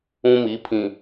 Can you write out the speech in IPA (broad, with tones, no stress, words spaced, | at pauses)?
ũ˦mi˨˦pʰĩ˨